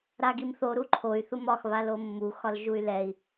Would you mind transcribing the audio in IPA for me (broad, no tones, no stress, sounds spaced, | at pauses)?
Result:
ɾ a ɡ i m θ o ɾ u ǃʰ o y̯ θ u m ɒ x β a l o mː u x ɒ l ʒ u y̯ l ɛ i̯